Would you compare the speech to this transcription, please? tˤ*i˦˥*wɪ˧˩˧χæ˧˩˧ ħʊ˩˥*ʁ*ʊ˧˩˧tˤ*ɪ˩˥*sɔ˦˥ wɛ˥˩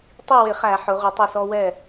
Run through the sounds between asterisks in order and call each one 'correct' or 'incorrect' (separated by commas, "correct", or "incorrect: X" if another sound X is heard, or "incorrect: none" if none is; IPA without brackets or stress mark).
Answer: incorrect: i˥˩, correct, incorrect: ɪ˥˩